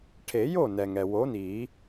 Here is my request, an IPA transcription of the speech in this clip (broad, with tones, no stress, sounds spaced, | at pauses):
ʈʰ e˨˩˦ j o˥˩ n ɛ˩ ŋ ɛ˩ w o˨˥ n i˨˩˦